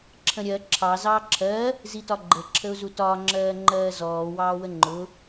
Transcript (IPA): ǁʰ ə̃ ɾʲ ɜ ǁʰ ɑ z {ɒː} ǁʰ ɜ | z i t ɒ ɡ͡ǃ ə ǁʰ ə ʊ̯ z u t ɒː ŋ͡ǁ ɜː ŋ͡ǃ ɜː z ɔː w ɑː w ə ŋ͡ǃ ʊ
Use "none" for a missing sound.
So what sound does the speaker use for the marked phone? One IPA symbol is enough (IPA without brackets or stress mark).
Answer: ɑː